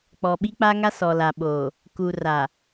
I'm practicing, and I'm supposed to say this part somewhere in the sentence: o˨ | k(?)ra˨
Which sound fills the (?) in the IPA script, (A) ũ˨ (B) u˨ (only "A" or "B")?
B